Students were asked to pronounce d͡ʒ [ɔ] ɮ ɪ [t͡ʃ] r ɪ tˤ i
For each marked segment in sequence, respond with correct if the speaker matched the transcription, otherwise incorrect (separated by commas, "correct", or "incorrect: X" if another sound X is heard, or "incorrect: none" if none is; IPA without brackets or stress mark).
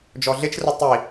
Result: correct, correct